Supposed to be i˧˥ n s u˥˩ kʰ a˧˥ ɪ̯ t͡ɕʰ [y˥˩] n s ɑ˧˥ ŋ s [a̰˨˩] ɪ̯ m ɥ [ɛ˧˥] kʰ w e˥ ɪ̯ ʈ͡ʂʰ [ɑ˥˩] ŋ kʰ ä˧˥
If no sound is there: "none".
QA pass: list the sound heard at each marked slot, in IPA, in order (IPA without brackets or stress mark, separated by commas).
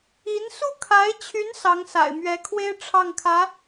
y˧˥, a̰˨˩, ɛ˧˥, ɑ˥˩